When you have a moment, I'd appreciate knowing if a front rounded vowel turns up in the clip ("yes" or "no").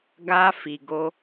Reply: no